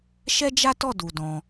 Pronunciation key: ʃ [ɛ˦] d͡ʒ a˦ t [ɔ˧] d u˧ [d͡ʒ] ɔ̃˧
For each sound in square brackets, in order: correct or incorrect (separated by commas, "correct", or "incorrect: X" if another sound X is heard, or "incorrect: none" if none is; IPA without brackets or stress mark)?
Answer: correct, incorrect: ɔ˦˨, incorrect: d